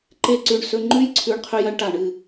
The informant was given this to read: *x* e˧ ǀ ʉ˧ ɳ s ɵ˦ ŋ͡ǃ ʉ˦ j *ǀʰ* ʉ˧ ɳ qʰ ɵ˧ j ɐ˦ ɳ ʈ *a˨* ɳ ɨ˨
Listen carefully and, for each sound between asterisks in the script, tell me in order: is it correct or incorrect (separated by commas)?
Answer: incorrect, correct, correct